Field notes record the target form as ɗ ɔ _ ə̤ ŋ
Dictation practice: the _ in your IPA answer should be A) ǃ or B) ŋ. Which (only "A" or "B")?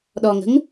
B